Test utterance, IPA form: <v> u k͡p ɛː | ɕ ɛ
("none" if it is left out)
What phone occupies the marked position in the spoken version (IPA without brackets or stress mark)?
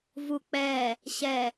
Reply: v